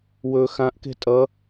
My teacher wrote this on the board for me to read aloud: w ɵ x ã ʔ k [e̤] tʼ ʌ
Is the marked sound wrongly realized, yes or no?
no